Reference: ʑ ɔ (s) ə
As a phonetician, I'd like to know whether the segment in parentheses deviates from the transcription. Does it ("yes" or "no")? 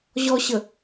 yes